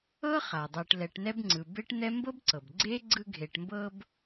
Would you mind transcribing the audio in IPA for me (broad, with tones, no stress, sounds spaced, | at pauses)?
ɤ˥ χ a˩ dˤ ɤ˨ ʈ l ɛ˨ ʈ n ɛ˦ b ŋ͡ǀ ɯ˩ b e˥ ʈ n̪ ɛ˥ m b ɤ˥ b ǀ ɤ˩ b ɡ͡ǀ e˥ ɡ͡ǀ ɯ˦ ɡʱ e˨ ʈ m b ɤ˦ b